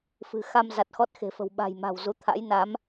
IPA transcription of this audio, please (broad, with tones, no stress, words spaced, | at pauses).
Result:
fɨ̤˨˩ xa˧m za˨˩t̚xɔ˦˥t̚ xe̤˨˩fə̤˨˩w ɓa̤˨˩jma̤˨˩w zu˨˦ t̪ʰa̰˧˥j na˨˦m